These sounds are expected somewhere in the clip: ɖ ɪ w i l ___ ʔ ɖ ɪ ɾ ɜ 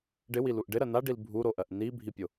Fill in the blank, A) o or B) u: B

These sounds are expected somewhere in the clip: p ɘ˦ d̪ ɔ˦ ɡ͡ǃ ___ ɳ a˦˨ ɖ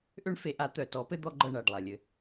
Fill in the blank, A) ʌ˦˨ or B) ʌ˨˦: A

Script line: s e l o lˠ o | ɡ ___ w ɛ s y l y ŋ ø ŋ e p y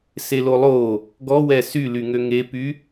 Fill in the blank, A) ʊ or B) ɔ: B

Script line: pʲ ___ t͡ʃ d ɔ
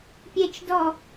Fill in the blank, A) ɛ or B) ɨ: A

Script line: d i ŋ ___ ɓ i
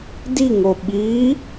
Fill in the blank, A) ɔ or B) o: B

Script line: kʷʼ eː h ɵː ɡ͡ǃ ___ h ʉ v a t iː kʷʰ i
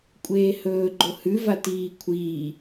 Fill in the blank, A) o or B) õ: A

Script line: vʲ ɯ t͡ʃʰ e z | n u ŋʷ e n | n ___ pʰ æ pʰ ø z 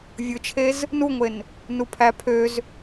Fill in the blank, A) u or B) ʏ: A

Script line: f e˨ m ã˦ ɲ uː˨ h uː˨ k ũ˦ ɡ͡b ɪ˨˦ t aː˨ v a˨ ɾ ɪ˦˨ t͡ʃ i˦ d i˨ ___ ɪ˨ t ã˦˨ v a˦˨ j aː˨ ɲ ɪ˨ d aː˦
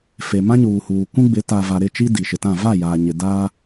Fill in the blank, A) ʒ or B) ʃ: B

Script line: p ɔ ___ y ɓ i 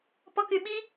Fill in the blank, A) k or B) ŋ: A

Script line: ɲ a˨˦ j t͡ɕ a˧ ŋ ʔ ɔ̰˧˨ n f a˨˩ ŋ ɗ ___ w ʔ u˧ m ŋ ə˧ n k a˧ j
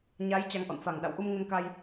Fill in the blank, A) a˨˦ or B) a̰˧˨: B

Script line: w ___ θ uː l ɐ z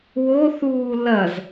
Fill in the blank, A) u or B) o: B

